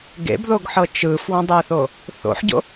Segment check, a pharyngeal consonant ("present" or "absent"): present